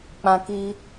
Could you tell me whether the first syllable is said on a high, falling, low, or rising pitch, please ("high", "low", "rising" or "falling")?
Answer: high